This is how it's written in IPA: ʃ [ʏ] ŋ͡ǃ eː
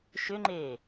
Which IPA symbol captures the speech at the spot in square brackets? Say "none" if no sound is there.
ʏ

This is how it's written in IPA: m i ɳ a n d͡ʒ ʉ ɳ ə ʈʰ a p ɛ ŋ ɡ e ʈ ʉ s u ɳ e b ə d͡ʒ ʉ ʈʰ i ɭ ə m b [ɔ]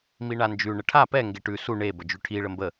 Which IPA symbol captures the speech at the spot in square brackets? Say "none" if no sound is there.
ə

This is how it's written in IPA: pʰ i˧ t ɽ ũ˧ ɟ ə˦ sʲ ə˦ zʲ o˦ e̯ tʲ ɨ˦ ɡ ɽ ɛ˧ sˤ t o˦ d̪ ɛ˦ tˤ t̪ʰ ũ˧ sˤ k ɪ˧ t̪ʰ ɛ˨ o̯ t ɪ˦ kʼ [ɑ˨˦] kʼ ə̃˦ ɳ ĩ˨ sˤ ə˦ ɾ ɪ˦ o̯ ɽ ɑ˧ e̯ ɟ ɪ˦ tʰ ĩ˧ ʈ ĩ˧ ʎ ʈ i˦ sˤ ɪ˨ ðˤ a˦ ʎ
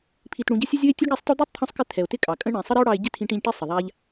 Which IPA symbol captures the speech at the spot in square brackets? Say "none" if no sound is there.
ɑ˨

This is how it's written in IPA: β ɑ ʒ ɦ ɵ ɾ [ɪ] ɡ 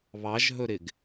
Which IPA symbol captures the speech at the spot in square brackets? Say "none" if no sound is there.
ɪ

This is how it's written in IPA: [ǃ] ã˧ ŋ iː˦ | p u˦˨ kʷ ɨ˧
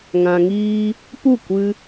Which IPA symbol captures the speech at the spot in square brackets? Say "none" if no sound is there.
ŋ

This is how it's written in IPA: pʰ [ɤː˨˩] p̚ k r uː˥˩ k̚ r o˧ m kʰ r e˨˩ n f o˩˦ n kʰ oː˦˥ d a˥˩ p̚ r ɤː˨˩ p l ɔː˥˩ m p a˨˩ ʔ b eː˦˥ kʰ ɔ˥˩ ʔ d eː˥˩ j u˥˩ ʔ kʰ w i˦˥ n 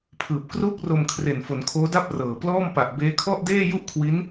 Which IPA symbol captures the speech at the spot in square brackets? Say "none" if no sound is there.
ɯː˨˩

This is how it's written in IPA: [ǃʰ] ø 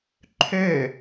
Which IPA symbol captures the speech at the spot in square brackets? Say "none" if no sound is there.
ǃʰ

